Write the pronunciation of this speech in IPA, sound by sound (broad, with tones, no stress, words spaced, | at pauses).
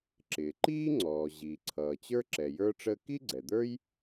ǁɪː˩ ǃiː˥ŋ͡ǀɔː˩ ʑiː˩ǀʰʌː˩t͡ɕə˞˥ ǁɛ˩jə˞˥ʈ͡ʂəː˥ ki˥ɡ͡ǀɛ˩d̪ə˞˥j